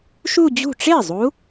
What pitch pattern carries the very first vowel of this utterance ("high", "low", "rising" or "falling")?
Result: falling